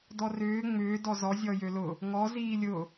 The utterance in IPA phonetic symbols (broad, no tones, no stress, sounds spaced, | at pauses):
d ɔ r ʏː ŋ͡m ʏː d ɔ z ɔ zʲ ɔ j ø l ʊ | ŋ ɔ z iː lʲ ʊ